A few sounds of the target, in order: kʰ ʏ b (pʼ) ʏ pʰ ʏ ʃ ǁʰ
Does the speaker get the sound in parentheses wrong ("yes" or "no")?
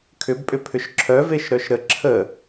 no